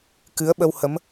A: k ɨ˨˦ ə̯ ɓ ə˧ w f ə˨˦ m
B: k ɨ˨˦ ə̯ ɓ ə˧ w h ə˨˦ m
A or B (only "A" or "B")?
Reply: B